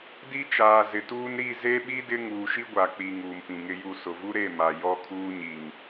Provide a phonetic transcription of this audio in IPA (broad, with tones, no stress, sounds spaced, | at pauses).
d i˦ t͡ʃ aː˨ z ɪ˨ t uː˦ n ɾ i˦˨ z e˦ ɓ i˦ d ɪ˦ ŋ uː˨ ʃ i˦ ɡʷ a˨ k͡p i˨ ŋ uː˨ m p ĩ˨ ŋ ɪ˦ j u˦˨ s ʊ˨ v u˦ ɾ e˦˨ m a˨ j ɔ˦ kʰ uː˦ ɲ i˨ ŋ